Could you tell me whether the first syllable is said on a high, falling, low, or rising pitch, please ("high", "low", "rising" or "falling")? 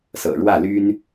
low